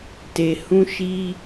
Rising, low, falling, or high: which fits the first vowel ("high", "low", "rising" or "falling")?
low